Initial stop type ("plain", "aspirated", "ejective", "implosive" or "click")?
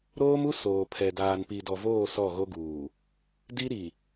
aspirated